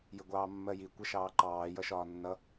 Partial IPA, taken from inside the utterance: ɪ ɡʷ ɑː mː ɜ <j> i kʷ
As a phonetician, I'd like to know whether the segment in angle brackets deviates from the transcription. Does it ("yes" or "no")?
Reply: no